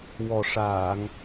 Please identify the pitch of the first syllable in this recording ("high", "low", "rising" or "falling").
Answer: low